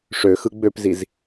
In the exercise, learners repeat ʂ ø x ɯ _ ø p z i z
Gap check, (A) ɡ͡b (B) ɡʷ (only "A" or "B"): A